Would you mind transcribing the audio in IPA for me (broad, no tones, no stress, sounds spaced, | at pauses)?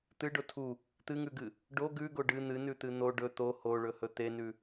t̪ ɨ ɖ o tʰ u | t̪ ɨ ŋ ʉ ɡ ɨ | ɖ o ɡ ʉ ɡ o ɖ ɨ n̪ ɨ n ʉ t̪ ɨ n̪ o ɖ ɵ t̪ o h o ɭ ɵ h ɵ t̪ e n ʉ